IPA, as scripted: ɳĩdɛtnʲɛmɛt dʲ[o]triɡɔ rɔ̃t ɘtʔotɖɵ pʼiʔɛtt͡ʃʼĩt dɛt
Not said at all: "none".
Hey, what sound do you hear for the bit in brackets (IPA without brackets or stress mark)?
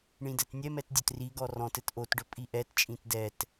ɵ